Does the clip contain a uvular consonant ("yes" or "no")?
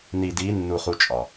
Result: yes